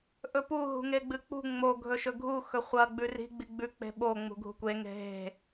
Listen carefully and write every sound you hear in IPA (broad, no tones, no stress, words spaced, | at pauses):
ʔɵpu ɦṳŋeɡ͡bɨk͡pṳ ŋ͡mo ɡʱɵʃɵɡʱu xɵχʷɐ ɡ͡bʉri̤ ɡ͡biɡ͡bʉ k͡pe̤ɓo ŋ͡mṳɡʱṳkʷe ŋe̤ɦe̤